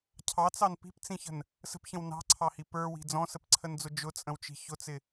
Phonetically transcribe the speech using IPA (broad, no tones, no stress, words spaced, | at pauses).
cʰɑt͡sɑn pi̤pt͡sĩçə̤n | sə̤pçə̃w nɑ̤ǀʰɑhi pə˞wi̤ d͡zɔ̃səpǀʰənd͡zʊ d͡ʒʊt͡sʼə̃wt͡ʃi̤ çʊt͡sɪ